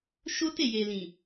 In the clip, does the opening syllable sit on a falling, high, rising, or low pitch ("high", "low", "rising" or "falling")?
high